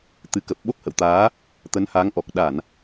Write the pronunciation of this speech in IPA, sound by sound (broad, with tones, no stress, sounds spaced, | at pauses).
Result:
t̪ ɨ˨˦ k ə˨˩ p̚ ɓ o˦˥ k̚ h ə̰˧˨ w t̪ aː˨˦ | t̪ ə˨˦ n h a˨˦ ŋ ʔ ɔ˨˩ k̚ ɗ a˧˩˨ n